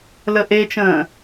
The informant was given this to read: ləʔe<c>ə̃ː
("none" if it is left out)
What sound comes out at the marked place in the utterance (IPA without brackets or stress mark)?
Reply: t͡ʃ